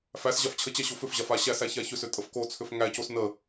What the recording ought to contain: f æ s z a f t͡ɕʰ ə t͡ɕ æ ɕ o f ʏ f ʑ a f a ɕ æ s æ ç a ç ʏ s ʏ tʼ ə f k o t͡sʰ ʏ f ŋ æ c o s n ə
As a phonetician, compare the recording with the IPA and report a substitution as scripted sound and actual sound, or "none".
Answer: z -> ʑ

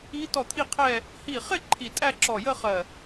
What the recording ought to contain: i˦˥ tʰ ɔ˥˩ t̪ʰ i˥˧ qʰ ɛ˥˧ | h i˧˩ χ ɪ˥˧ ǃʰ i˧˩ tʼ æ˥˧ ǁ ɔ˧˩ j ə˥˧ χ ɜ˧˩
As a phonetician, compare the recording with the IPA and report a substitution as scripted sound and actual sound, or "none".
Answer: tʰ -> t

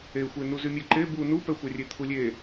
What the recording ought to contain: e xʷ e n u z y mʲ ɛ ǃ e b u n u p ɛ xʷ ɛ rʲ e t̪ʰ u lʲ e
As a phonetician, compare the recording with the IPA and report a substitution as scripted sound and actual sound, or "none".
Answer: none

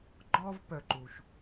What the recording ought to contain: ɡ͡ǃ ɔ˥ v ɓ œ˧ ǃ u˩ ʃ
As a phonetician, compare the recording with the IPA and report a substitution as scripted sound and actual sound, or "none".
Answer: ɓ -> p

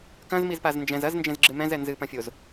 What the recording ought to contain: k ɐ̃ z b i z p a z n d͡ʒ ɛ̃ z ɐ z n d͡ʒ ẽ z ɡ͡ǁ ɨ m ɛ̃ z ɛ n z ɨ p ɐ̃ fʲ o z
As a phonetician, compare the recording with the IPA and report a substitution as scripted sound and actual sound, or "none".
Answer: b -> m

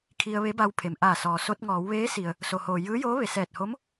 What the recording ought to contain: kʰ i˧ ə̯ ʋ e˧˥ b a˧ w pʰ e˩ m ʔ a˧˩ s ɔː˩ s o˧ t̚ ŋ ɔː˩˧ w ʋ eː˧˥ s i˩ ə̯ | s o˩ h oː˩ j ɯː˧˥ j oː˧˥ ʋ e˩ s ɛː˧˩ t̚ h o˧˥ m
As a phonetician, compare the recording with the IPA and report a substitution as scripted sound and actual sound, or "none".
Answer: none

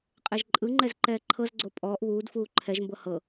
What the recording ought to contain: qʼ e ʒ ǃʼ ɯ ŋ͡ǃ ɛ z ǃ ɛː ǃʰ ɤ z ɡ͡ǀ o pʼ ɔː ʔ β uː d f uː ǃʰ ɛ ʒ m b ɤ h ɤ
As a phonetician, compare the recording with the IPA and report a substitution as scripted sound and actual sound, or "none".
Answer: none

